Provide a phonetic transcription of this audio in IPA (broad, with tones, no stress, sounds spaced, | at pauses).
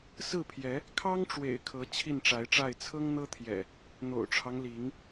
s ɹ̩˥˨ pʰ j ɛ˨˦ | kʰ ɑ˦ ŋ ʈ͡ʂ w ḛ˨˩ ɪ̯ kʰ ɤ˨˦ t͡ɕʰ i˥˨ n ʈ͡ʂ a˨˦ ɪ̯ ʈ͡ʂ a˥˨ ɪ̯ t͡sʰ ɤ˦ ŋ n̪ ɤ˦ t̪ʰ j ɛ̰˨˩ | n̪ o̰˨˩ ʊ̯ ʈ͡ʂʰ ɑ˦ ŋ l i˨˦ ŋ